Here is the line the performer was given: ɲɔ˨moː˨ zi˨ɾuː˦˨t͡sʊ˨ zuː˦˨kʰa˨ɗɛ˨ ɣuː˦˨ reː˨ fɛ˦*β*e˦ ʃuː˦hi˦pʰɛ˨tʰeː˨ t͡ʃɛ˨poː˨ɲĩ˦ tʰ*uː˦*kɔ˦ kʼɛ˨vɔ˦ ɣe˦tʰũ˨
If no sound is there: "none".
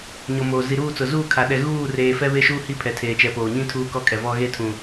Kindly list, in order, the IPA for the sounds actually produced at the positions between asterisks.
β, uː˦

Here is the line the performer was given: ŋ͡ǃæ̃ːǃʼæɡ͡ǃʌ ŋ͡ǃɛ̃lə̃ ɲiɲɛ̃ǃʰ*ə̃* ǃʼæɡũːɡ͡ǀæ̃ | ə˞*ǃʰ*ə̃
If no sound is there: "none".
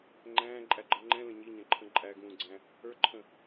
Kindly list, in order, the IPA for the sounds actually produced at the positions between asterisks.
ə̃, ǃʰ

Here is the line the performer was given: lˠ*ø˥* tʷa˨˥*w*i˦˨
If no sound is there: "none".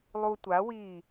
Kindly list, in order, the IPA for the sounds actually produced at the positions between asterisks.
u˥, w

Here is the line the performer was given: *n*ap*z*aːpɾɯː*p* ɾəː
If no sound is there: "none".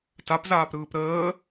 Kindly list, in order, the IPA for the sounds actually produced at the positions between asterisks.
t, z, p

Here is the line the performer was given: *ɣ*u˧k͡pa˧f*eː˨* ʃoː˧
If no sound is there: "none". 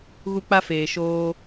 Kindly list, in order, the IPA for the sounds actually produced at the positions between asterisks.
ɣ, eː˨

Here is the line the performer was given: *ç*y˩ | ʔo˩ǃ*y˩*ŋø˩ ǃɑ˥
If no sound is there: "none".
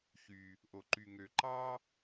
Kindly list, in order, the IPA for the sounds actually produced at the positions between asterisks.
ç, y˩

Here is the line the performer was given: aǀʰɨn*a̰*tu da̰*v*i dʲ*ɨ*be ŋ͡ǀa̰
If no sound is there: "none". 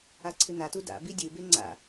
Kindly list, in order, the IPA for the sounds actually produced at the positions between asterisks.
a, b, ɨ

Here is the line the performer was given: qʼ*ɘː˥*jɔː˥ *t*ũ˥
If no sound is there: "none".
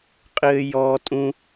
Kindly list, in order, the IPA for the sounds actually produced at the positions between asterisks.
ɘː˥, tʼ

